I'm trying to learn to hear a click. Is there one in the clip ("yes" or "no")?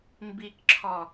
yes